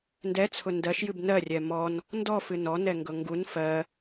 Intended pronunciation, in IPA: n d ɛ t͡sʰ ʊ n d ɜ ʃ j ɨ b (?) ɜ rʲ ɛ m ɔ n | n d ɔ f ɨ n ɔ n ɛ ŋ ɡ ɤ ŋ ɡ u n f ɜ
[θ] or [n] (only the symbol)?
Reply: n